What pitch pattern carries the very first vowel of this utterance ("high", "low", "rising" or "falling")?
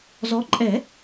rising